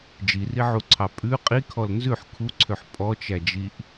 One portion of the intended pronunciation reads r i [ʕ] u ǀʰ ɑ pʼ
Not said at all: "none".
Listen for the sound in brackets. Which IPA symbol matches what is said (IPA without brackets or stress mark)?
ʕ